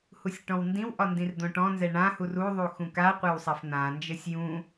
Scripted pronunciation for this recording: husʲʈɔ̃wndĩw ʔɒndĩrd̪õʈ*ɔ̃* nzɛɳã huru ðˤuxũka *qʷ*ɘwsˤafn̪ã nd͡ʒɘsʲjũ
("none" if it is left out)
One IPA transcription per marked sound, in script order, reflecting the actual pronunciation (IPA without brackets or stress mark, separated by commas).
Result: ɔ̃, qʷ